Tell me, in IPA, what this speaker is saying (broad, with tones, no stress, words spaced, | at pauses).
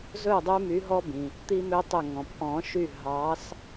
zɵ˥˨dˤʉ˦my˨˦ ɦɔ˦bĩ˩ | t̪i˦mø˦tˤɵ˧˩ ŋɔ̃˩pʔɔ̃˨˩˦ʃy˧˩ ɦɑ˨˦s